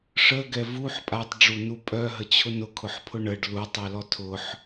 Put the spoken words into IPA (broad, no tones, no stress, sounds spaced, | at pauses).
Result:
ʂ ə ɡ ɛ v u ħ pʼ a tˤ ɖ͡ʐ u n u pʼ œ ɦ ə t͡ɕʰ ʊ n ʊ kʰ ʊ ħ pʰ ʊ ɳ ə ɖ l u tˤ œ l ɔ tʰ ʊ ħ